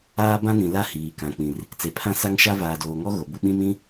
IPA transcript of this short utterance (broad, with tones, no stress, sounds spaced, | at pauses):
aː˦ b ã˦ n ĩ˨ l a˦˨ h iː˨ k ã˨ k͡p ĩ˨ r | t͡s e˨ pʰ ã˦ s a˦ ŋ ʃ a˦ v aː˨ d oː˨ ŋ ɔ˦ ɣ o˨ b u˦ ɓ ĩ˦ m ĩ˦